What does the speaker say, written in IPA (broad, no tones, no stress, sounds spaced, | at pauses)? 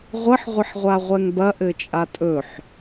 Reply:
ʁʷ ə ħ ʁʷ ə ħ ʁʷ a ʁʷ ɛ ŋ b ɐ ʔ ɘ t͡ʃʼ a tʼ ɵ ħ